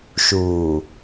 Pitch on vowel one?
low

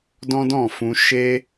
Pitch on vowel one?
high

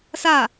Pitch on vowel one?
falling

